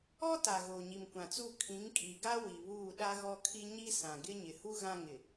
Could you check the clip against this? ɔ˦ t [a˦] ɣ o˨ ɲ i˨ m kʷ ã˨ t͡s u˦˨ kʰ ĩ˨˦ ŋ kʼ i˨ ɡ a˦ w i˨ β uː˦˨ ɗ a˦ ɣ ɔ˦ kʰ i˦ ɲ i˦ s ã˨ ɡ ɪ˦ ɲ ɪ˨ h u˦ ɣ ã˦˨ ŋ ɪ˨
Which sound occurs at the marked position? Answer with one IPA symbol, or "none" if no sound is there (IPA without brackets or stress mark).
a˨